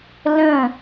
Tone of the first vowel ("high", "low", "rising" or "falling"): falling